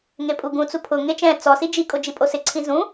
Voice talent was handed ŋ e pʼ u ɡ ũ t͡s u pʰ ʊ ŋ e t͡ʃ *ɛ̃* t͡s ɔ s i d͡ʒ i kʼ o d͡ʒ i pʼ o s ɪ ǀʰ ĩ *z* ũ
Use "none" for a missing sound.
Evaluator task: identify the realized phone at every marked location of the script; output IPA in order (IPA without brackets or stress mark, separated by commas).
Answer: ɛ̃, z